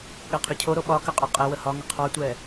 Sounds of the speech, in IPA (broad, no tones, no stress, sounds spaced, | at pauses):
ɠ ɛ qʰ y cʰ o ɾ o ɓ ɒ k ə qʼ ɒ qʼ ɛ w ə h ɒ ŋ ə qʰ ɑ tʷ ɛ